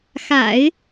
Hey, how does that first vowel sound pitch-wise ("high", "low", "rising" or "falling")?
low